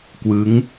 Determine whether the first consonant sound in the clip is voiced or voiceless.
voiceless